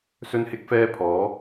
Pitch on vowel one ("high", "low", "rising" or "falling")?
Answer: high